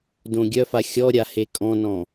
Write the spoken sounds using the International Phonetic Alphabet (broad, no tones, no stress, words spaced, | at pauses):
dõɡʲœfa xʲɔɾʲa hekʼɔ̃nɔ̃